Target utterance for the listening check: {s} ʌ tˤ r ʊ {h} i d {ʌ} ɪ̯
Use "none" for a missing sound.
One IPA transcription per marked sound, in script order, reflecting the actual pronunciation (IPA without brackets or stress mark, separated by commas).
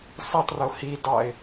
s, h, ɑ